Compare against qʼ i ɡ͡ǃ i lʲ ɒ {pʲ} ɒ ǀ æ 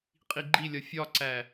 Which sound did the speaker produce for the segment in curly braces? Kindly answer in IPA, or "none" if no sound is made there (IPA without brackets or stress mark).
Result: fʲ